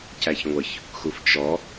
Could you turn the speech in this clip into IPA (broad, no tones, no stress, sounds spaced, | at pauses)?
c æ ç ŋʷ ə ç | x u f t͡ʃ ɔ